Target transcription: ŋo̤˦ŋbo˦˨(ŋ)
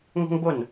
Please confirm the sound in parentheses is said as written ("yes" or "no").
no